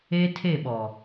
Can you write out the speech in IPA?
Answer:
e˦ tʰ e˦˨ ɓ ɔ˨

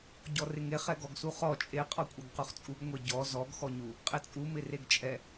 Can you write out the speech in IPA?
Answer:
ɟ ɔ r ɪ ŋ e χ ɛ ɡ ɔ ɡ s u χ ɔ t͡ʃʼ e qʼ ɔ kʷʼ ɛ ɡ q u χ t͡sʼ u ɡ ŋʷ e ɟ ɔ z ɔ ɡ x ɔ ɲ u | qʼ ɪ t͡sʼ u m ɪ r e ɡ t͡ʃʼ ɛ

